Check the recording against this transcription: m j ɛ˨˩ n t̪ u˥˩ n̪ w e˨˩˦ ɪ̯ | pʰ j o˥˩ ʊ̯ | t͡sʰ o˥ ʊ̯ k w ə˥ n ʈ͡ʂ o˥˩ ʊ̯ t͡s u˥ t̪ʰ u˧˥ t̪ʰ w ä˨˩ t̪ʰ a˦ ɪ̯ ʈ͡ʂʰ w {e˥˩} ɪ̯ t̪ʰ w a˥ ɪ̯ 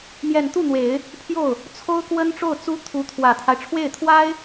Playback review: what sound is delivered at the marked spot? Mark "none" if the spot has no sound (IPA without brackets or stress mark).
e˥˩